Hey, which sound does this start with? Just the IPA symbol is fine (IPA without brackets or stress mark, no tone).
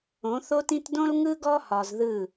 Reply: õ